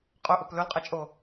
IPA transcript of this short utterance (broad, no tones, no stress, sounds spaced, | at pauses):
qʼ ɵ ʔ ɵ p l ɵ l qʼ ɛ t͡ʃʼ o